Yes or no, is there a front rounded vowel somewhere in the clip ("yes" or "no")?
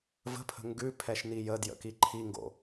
no